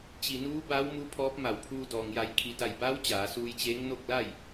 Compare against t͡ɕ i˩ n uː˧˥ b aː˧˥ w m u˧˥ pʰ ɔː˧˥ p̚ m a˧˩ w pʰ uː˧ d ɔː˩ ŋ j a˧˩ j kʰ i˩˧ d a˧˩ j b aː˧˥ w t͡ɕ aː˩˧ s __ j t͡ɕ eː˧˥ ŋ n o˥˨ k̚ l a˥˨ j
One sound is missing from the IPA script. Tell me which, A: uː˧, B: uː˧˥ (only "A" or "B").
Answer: A